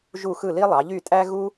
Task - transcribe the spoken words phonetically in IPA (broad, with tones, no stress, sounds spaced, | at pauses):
ʒ u˥˩ x ɯ˥˩ l i˥ lˠ ɑ˩˥ ʎ y˥˩ tʼ æ˥ ɣ u˥